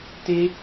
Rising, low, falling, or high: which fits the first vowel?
high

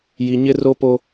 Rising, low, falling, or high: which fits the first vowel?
low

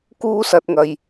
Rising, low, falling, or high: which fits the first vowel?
high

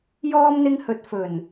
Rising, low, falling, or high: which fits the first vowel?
high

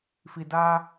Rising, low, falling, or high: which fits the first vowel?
low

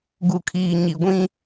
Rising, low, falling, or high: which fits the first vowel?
low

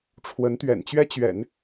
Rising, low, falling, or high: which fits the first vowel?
rising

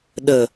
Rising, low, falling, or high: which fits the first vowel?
low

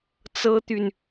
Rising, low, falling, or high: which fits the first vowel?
high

